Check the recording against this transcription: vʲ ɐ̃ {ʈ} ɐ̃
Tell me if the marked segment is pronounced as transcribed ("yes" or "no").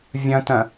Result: no